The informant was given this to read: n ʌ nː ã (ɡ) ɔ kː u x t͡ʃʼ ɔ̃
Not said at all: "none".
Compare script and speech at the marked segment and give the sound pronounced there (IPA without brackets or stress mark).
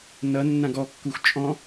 ɡ